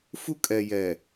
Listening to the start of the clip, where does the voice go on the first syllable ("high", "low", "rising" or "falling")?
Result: high